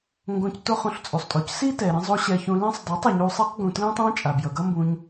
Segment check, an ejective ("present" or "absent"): present